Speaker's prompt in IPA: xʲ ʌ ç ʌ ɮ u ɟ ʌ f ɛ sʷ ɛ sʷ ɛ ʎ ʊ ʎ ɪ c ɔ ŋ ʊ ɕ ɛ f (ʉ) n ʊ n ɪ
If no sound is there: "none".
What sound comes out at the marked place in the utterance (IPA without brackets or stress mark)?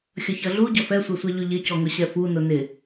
u